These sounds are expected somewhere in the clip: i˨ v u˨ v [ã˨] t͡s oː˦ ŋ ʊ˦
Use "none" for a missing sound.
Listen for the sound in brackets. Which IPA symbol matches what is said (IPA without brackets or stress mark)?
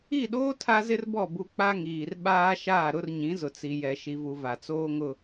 a˨